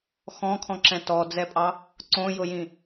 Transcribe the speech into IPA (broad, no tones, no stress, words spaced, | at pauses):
xɔ̃kʰɔ̃ǁɛ̃ tɔd͡zɛpʼɑ | ǀõjʊjĩ